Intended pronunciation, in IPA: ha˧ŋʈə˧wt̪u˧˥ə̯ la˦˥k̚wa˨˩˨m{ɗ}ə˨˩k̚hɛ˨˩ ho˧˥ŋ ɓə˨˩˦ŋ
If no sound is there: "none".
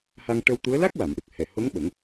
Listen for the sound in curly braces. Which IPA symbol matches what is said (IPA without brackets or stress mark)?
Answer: ɗ